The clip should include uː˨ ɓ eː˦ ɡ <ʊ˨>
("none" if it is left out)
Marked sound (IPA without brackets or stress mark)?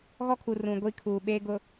ʊ˨